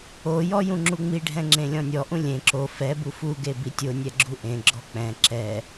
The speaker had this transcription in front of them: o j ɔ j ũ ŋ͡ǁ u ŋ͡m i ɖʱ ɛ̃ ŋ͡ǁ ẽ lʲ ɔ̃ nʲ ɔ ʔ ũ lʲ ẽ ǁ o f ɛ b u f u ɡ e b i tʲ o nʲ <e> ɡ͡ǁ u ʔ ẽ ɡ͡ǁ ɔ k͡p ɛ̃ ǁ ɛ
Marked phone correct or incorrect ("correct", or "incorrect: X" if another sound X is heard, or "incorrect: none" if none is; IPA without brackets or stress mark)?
incorrect: ɛ